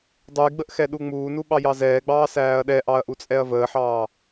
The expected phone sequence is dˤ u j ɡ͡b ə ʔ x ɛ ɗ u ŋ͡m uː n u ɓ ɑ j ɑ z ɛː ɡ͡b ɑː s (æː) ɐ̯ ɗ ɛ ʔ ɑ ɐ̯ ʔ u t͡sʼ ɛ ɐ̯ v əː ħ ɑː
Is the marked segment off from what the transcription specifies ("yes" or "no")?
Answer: no